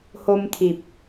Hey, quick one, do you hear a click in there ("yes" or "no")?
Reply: no